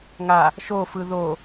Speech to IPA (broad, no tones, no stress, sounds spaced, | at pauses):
ŋ a | ʃ o f ɯ ð o